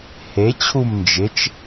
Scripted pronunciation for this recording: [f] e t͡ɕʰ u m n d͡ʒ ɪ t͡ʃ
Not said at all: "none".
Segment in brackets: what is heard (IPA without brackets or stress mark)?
h